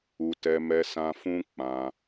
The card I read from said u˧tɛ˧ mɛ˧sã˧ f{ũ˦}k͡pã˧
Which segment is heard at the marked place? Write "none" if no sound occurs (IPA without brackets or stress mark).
ũ˦